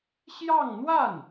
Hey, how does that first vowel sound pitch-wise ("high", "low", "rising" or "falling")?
falling